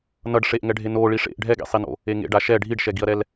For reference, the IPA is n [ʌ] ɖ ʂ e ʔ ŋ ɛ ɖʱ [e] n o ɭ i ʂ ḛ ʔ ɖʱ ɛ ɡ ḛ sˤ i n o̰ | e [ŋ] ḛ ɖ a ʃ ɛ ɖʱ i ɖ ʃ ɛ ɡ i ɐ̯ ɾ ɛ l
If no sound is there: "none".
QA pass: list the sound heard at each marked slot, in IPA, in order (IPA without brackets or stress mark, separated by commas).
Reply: ʌ, e, ŋ